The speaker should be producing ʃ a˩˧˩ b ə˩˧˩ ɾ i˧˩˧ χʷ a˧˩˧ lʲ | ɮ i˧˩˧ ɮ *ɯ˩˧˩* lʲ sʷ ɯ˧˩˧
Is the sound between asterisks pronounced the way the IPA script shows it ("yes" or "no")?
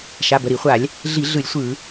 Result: no